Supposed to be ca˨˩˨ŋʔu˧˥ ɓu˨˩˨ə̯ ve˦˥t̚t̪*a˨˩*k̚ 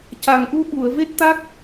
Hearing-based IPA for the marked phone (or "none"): a˦˥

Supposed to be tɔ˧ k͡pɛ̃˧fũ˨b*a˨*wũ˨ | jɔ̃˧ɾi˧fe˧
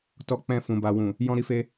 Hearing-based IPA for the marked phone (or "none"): a˨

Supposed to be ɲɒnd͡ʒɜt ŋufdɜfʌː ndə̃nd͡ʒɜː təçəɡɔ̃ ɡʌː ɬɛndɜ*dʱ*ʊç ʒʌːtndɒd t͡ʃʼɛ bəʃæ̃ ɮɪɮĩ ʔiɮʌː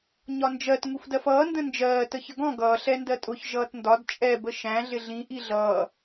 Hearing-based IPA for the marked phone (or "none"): tʼ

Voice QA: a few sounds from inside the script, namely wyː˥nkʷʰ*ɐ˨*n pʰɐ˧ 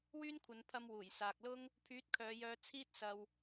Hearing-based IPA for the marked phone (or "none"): ɐ˨˧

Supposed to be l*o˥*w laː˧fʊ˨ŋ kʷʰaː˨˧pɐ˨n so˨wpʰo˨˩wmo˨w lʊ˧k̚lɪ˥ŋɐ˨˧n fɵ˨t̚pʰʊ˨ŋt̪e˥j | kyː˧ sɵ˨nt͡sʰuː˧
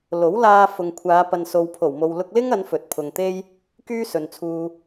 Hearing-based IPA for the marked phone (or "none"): o˨˥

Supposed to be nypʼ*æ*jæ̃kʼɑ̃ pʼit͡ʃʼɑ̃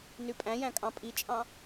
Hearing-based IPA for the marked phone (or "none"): æ̃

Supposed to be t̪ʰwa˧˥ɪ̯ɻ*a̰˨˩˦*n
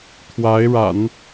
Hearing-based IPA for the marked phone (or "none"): a̰˨˩˦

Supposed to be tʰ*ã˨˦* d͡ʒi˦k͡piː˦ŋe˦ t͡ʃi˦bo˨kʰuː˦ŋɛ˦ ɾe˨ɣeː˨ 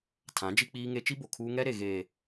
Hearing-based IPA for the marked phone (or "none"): ã˨˦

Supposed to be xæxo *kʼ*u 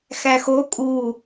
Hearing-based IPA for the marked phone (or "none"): kʼ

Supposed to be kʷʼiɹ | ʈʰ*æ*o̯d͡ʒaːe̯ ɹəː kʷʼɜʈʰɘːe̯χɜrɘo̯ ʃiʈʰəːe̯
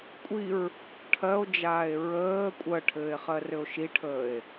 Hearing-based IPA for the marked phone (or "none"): ɜ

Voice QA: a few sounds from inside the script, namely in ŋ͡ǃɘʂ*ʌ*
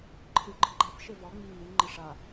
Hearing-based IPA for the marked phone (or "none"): a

